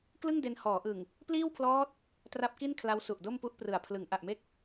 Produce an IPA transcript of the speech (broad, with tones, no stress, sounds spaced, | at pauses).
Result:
k l ɯ˥˩ ŋ d e˧ n h ɔː˩˦ ʔ ɯ˨˩ ŋ | p l iː˥˩ w pʰ l ɔː˦˥ t̚ | t r a˦˥ p̚ k i˥˩ n kʰ l a˦˥ w s u˨˩ ʔ d o˥˩ m p u˥˩ ʔ p r ɯ˨˩ a̯ pʰ l ɯ˩˦ ŋ ʔ a˨˩ ʔ m e˦˥ k̚